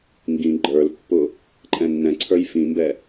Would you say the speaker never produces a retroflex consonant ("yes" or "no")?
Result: yes